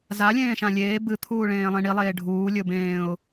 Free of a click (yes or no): yes